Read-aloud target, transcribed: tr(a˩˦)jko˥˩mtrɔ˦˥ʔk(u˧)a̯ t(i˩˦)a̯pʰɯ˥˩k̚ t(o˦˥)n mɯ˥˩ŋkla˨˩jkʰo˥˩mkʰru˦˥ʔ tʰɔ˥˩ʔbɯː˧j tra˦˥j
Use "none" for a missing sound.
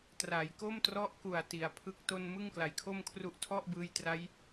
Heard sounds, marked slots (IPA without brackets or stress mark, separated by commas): a˩˦, u˨˩, i˨˩, o˧